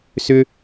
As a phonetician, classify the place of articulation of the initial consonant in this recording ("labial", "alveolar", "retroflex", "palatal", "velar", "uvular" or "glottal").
alveolar